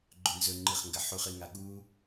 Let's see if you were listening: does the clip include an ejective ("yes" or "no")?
no